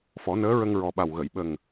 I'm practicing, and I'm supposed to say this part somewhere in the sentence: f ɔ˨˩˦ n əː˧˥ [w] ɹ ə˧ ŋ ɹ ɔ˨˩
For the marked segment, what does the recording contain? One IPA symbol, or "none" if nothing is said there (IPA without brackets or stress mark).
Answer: none